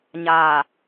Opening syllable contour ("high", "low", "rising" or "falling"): low